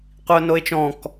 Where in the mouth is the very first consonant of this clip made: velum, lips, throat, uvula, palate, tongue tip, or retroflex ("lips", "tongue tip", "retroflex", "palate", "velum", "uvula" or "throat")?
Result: uvula